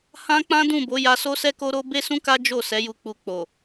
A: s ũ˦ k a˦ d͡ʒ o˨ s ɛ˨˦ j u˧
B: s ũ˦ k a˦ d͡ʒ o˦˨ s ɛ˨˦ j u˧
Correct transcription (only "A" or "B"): B